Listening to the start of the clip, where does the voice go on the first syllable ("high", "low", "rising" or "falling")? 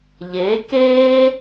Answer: rising